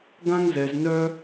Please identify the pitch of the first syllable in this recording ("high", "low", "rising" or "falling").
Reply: high